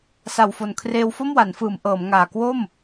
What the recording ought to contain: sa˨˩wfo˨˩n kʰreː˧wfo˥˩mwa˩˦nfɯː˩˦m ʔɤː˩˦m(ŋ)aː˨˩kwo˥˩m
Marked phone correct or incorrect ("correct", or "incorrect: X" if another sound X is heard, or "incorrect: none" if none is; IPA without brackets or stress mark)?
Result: correct